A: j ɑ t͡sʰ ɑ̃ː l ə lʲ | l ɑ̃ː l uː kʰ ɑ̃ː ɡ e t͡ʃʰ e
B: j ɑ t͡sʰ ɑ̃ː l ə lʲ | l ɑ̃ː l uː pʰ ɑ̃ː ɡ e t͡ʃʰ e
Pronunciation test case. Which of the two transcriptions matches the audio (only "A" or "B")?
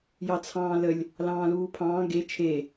B